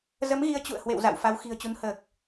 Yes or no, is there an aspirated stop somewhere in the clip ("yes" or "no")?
no